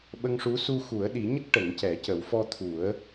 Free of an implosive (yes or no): no